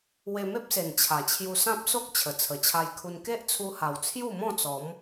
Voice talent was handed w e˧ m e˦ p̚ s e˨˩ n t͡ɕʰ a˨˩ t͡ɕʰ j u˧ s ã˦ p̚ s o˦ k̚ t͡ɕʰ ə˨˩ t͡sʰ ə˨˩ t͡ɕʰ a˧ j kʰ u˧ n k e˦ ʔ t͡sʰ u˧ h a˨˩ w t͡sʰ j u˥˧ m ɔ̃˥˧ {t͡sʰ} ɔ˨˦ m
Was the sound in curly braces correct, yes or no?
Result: no